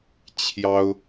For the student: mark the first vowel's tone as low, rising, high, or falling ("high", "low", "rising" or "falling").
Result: high